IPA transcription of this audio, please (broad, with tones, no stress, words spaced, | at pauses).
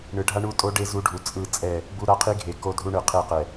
ɳɯ˨ɖʱa˦ ɳu˦tʼo˦ɖe˦ zu˦ɖʱu˨ t͡sʼɯ˦˨t͡sʼɛ˦˨ | bu˦ɾa˦qʰi˦ɡʱe˨ ko˦dʱu˦ɳɯ˨ qʰe˦˨qɛ˨